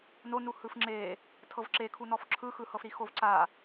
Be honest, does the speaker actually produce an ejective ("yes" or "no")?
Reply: no